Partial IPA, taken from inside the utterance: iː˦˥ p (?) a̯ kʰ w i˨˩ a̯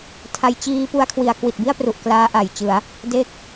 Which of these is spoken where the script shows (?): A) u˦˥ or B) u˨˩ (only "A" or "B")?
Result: A